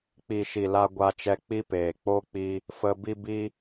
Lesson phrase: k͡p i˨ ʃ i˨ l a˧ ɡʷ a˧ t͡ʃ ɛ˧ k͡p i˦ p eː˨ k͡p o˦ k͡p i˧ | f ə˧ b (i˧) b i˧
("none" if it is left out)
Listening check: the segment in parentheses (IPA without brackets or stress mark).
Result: i˧